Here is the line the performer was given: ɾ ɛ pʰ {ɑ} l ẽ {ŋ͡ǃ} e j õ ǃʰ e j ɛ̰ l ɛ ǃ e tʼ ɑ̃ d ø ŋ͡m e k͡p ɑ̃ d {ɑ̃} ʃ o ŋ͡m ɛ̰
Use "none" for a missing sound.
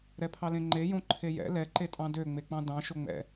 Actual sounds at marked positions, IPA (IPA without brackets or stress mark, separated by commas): ɑ, ŋ͡ǃ, ɑ̃